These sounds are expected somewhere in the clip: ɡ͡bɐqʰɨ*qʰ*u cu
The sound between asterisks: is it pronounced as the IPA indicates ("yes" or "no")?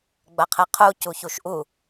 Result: yes